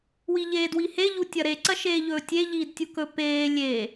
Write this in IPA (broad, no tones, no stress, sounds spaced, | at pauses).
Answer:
w i ʎ eː d w i h e ʎ u tʲ ɐ ɾ e ǀ ɐ ʃ eː ʎ ɵː tʲ e ʎ iː d tʲ u k ɵ p eː lʲ e